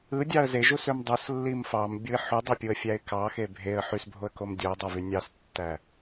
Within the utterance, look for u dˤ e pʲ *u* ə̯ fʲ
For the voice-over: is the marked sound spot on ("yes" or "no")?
yes